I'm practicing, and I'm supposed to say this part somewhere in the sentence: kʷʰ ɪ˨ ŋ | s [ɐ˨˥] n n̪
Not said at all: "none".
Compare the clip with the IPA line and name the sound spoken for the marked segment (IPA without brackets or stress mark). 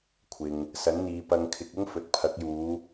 ɐ˨˥